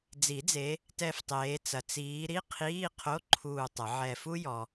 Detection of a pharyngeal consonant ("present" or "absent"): present